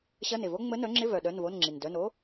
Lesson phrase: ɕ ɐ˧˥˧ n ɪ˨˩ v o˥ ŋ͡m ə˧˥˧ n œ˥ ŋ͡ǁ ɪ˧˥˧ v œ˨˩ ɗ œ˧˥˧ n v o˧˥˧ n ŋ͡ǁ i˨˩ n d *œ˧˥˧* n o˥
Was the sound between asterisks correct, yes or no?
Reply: yes